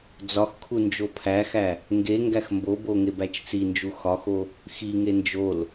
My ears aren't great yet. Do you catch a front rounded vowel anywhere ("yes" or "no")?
no